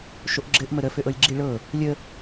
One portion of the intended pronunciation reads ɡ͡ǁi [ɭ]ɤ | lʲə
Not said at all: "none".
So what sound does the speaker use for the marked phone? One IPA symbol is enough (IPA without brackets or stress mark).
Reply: ɭ